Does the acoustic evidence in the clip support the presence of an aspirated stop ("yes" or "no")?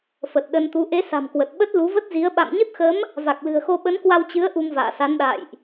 no